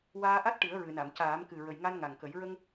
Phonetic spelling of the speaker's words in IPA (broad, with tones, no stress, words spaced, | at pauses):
waː˧ʔa˦˥t̚ ʈɨ˨˩˦ə̯ɹɨ˨˩˨na˨˩˨m caː˨˩˦mkɨ˨˩ ɹə˨˩jŋa˧nŋa˨˩ŋkə˨˩˦j ɹə˧ŋ